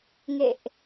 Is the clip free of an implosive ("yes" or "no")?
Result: yes